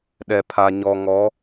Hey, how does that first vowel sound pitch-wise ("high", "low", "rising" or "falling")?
low